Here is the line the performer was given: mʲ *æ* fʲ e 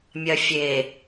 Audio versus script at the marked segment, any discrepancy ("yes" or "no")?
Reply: yes